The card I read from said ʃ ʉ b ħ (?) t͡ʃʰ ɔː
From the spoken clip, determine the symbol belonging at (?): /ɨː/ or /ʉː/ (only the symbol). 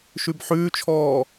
ʉː